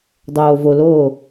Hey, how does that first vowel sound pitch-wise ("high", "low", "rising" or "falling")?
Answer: low